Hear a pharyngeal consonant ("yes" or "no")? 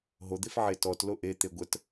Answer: yes